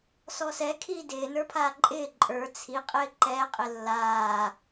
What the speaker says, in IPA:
s ɔ s ɛ kʰ iː d ɪː n ə˞ pʰ aː ǃʼ ɪː ǃʼ ə˞ t͡sʰ i qʼ ɪː ǃ ɛː qʼ ɪ lː aː

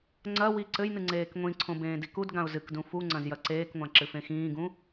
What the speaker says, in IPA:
ŋ͡ǀ ɐ w i ǀ ɘ j n ɨ ŋ͡ǀ eː k ŋʷ ĩ ǀʰ õ b ẽː d i k u d ɡ ã ʊ̯ z ɨ k d ũ f u ŋ͡ǀ ɐ̃ z j ɐ ǀ eː k ŋʷ ã ǁ ɨ f ẽ x ĩː ɡ ũ

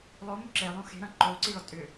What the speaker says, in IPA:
lˠ o m ʏ ǁ e lˠ õ x e̤ ɾ ɐ̃ ǃ o ǀ i ɭ ɒ tʼ ʏ

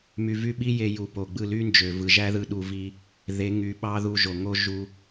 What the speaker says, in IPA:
m y˨ v y˧ ɓ i˦ j e˧ j u˨ p o˨ ɡ͡b ɯ˦˨ l y˦ n d͡ʒ ø˨ v ɯ˨ ʒ æ˦ ð ɯ˧ ɗ u˧ v i˦ | ð e˨˦ ŋ y˨˦ ɓ ɑ˦ ð u˧ ʒ o˨ ŋ o˦ ʒ u˦

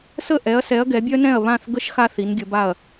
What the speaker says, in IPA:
s ə˥˨ ʔ ɛ˨˦ ɐ̯ s ɛ˨˦ ɐ̯ ɡ ɛ˨˦ bʲ œ˥ n ɛ̃˥˨ ɐ̯ β ã˥˨ θ ɡ ə˥ ʃ x a˥ θ i˨˦ n ɡʲ ə˨˦ b a˥˨ ɐ̯

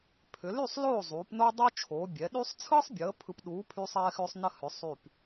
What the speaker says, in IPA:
pʰ ʏ˩˧ l y˥˨ sˤ l oː˥˨ zˤ uː˩˧ p n o˦ dˤ o˦ t͡ʃʰ oː˩˧ bʲ ɛ˩˧ ɗ y˦ sˤ t͡sʰ ɯ˦ sˤ bʲ əː˩˧ pʰ ɯ˨˥ p ɗ uː˨˥ pʰ y˦ sˤ ɛː˦ x ʏː˦ sˤ n ə˥˨ h ʏ˩˧ sˤ y˧˩ p

